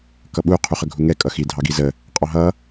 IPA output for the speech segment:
k ʌ ɓ u qʰ u χ ə ɡʱ u ŋ ɛ kʼ ʌ x i dʱ ɑ ɡ i z ə | qʼ ɑ ɦ ʌ

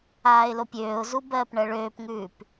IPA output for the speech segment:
aː ɪ̯ l o pʲ øː ʊ̯ z u b ɜː p ɳ ɜ ɭ øː p ŋ ʉː p

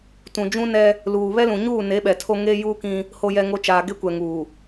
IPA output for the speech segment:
t ũ˨ d͡ʒ ũ˦ n ɛ˦ | l uː˨ β ɛ˦ l ũ˨ ɲ uː˦˨ n e˨˦ ɓ ɛ˨ tʰ o˦ ŋ eː˦ j uː˦ k ĩ˦ | h o˨ j ɛ˨ ŋ o˨ t͡ʃ aː˨ ɡ e˦ kʷ ɛ˨ ŋ uː˨

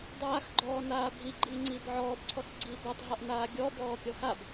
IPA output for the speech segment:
dˤ aː x ɡ͡ǃ ɔː n aː bʱ i ɡ͡ǃ iː ŋ͡ǀ iː b ʕ ɔː b ǀʰ ɔ x ɡ͡ǀ iː b ɔ tˤ ɦ ɔ ʔ n aː ɡʲ ɔ b ɔː kʲ ɔ x a b

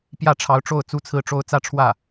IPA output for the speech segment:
p j ä˥˩ ʈ͡ʂʰ ɑ˧˥ ʊ̯ ʈ͡ʂ o˥˩ ʊ̯ t͡s u˥ t͡sʰ ɹ̩˥˩ ʈ͡ʂ o˥ ʊ̯ t͡s ä˥˧ ʈ͡ʂʰ w ä˥˩

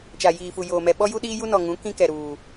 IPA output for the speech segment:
t͡ʃ a˨ j iː˨ f u˨ j oː˨ m ɛ˨ ɓ ɔ˦ j u˦ ɗ iː˦ j u˦ n ɔ˨ ŋ ũ˨˦ k ĩ˦ k ɛ˨ ɾ uː˨

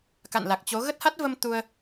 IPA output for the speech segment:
k a̰˧˨ n l a˨˩ k̚ t͡ɕ o˨˦ ɣ ə˦˥ t̚ h a˦˥ t̚ v ə˧ m t̪ u˧ ə̯

